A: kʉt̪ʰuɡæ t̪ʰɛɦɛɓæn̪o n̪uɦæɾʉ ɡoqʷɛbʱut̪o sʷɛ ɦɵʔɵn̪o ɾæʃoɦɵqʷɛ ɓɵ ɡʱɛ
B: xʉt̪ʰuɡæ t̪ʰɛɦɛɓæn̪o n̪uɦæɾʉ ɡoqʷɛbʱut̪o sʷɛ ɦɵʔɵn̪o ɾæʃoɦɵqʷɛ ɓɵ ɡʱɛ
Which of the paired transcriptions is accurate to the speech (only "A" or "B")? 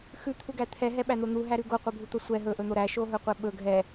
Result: B